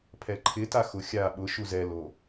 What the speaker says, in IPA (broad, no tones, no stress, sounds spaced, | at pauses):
pʰ ɛ ǃʰ ɪ t a x ʊ xʲ a ɓ ʊ ʃ u z ɛ l o